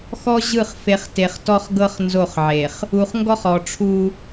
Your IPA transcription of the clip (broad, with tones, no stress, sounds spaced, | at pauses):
x ɔ˦ ʑ ɯ˦˨ χ f e˨ χ t e˨ χ t ɔ˦ χ ɡ ɤ˦ χ n z o˦˨ χ ʕ e˨ χ | u˨ χ ŋ ɡ ɔ˦ χ ɔ˨ ʈ͡ʂʰ u˦